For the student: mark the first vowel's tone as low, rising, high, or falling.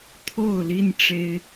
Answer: falling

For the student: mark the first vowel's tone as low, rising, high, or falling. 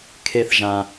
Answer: high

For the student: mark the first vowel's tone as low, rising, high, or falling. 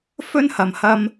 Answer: high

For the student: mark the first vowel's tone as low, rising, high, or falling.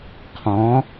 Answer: rising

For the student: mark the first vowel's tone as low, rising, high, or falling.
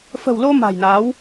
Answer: low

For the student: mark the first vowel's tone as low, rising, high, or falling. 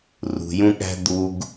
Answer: low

